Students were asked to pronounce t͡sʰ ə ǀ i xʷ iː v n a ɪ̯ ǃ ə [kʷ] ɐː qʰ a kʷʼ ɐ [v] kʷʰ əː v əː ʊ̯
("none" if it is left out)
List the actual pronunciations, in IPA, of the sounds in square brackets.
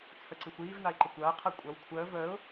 kʷ, w

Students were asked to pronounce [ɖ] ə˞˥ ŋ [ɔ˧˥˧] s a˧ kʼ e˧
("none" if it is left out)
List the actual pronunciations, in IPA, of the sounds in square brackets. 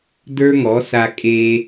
d, ɔ˩˥

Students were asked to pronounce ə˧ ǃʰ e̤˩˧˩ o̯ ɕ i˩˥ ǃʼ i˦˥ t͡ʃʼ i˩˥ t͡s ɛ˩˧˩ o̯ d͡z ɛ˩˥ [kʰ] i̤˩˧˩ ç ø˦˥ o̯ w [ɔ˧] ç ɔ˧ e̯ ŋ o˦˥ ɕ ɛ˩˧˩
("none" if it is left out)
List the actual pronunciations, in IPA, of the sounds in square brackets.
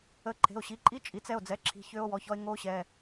ǁʰ, ɔ˩˧˩

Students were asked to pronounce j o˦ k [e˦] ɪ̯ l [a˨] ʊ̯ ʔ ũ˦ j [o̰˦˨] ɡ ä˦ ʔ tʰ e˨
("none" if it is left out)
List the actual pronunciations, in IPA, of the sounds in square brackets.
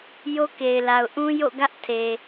e˨, a˨, o̰˦˨

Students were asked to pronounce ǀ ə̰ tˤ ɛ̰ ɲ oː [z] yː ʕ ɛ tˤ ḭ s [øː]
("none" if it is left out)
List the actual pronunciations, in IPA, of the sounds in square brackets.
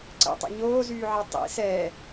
z, ɛː

